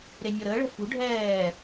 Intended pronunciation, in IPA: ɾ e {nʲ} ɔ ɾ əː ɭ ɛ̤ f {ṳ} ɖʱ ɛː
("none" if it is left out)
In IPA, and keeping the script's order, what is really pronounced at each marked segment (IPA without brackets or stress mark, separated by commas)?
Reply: nʲ, ṳ